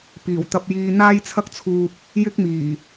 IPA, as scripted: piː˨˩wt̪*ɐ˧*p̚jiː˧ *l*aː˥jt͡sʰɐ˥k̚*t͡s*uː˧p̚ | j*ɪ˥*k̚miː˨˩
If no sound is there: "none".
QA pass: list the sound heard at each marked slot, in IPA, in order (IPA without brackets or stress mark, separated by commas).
ɐ˧, n̪, t͡sʰ, ɪ˥